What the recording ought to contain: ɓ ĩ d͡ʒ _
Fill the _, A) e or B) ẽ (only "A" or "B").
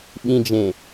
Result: B